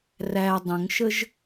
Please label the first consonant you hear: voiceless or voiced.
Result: voiced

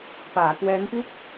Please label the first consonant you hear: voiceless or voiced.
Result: voiceless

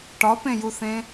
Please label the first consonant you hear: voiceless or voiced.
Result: voiceless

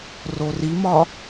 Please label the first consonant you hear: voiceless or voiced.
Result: voiced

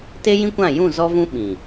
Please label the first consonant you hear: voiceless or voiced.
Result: voiceless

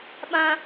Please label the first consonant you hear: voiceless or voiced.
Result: voiced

